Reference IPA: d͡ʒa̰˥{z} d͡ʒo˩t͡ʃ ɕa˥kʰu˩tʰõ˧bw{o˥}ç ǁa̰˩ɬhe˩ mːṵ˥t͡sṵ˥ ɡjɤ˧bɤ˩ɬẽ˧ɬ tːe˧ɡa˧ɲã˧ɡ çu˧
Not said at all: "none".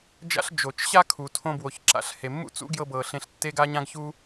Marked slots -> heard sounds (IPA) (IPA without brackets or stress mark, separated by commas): ɬ, o˩